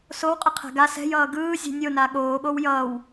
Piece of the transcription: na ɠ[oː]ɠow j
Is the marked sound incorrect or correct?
correct